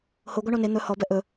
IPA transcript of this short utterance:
hoɡʷa ɳone n̪ɵ hɔbɛ ʔɵ

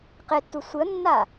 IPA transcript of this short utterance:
qetːu sʷɯə̯nːa

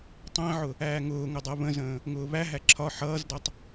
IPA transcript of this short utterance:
tˤæ̃ʕʊ | æːŋʊːŋʊ dˤɜβə̃zə̃ː | ŋʊːβæɦæ ǁʰɒ ħʌːzdʌtˤ

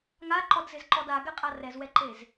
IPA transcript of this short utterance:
ŋaǃɔdzɪzǃɔd aɡɛqʼa rɛzwɛǃez

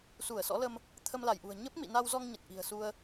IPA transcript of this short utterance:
su˧˩ə̯sɔ̰˧˥lə˧m | t̪ʰə˧mla˧˩jʔṳ˨˩ə̯ ɲə˦˥p̚mḭ˧˨na˧wzɔ˧ŋ ɲə˨˩t̚ʔi̤˨˩ə̯su˧ə̯

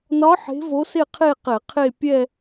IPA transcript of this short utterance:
nɒ˧˥ ħe̤˧˥vo˧˥se˥˧qʰe˥˧ qɛ˧˩˧qʰe˥˧ pʲɛ˥˧

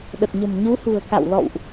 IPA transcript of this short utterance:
ɗə˨˩t̚ɲə̤˨˩mɲu˨˦hṳ˨˩ə̯ ka̰˧˨wlɔ̰˧˨wʔ

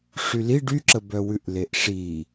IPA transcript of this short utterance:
ʂyliɖ yǁəbœwʉʔ leʔʂi

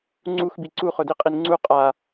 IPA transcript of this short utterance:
ŋ͡ǀuxbi ǀuχʊdiqʼin ŋ͡ǀu qʼa

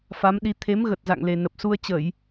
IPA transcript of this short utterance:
fa˨˦mɗi˨˦ t̪ʰe˨˦m ɣə˨˩t̚za̰˧˨ŋle˨˩ nə˨˩p̚ su˧ə̯t͡ɕə˧˩˨j

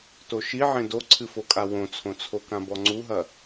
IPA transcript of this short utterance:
toʃiʕẽ doǀʰɨfokʼa wõt͡sʰõt͡sʰokã bɔŋ͡ǀuɦɐ

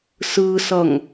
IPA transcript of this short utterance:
sɯsʌŋ

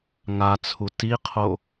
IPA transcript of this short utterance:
ŋat͡sʰu tiqʰo

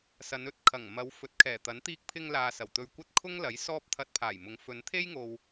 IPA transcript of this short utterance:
sɐ˨˧nɵ˥t̚kʰɐ˨˩ŋ mɐ˨˧w fɵ˨˥t̚kʰɛː˨˩t̪ɐ˨˥n t̪iː˧k̚pʰɪ˧ŋlaː˨ sɐ˨˩wt̪ɵ˧ɥkʷɐ˥t̚ kʰʊ˥ŋlɐ˨˥j sɔː˥p̚t̪ʰɐ˧t̚pʰaː˨˩jmʊ˨˧ŋ fɵ˨˧nt̪ʰe˥j ŋo˧w

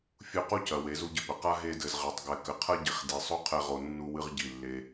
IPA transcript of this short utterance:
fʲu˧qu˦cɐ˨ we˨˦zu˦ɟɘ˧pɘ˨ qa˦ ɦe˧dɘ˨zʁɛ˨tˤ ɡɛ˨kɘ˨qʰɐ˦ ɟi˨χdi˨sˤo˦qʰɛ˧ ʁo˧ nːu˦wɨ˦ʁɟi˦˨ lːe˦

